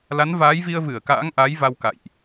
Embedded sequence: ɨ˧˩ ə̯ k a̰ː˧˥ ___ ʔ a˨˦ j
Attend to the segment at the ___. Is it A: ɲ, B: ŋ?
B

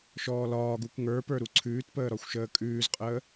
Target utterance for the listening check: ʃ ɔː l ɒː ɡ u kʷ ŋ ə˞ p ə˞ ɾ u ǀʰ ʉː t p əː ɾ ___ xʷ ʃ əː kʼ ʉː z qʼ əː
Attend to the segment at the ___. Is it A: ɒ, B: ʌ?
A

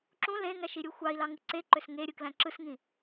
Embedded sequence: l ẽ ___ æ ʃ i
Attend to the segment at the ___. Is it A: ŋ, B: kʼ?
A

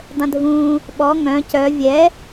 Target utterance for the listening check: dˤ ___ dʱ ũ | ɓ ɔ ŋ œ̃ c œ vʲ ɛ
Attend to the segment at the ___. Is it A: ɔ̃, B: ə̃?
B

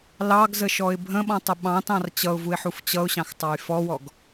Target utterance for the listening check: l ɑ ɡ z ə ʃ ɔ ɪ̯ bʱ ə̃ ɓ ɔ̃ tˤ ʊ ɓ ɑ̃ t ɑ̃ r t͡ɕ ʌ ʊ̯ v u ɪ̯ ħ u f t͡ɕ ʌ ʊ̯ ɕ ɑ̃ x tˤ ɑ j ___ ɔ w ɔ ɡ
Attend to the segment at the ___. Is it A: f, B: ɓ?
A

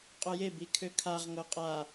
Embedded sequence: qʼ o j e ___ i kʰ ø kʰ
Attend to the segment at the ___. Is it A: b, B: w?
A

